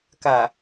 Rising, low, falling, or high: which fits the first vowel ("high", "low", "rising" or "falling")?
low